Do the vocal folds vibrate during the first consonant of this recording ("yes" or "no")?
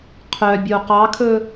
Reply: no